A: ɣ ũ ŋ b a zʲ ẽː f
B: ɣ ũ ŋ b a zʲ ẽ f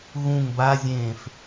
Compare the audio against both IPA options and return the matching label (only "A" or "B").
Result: A